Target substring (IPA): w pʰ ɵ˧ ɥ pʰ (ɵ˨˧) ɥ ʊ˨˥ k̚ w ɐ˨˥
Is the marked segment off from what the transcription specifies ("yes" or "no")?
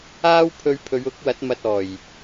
no